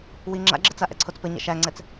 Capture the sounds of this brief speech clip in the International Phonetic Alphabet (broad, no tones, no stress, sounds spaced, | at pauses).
w i ŋ͡ǁ a̰ ɡ͡ǁ ɘ t͡s a ʔ ɛ̰ ǀʰ o t͡s p ɘ ɲ ɛ̰ ʃ æ ŋ͡ǀ ɛ t͡s